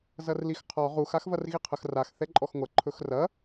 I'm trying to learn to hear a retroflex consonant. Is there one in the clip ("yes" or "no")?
no